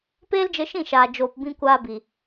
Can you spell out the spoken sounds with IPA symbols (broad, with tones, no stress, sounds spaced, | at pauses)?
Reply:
p eː˦ l d͡ʒ ə˧ ʃ ĩ˦˨ ʃ aː˨ d͡ʒ oː˨ p b ĩ˧ kʷ aː˧ b i˨